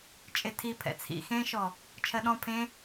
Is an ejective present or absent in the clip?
present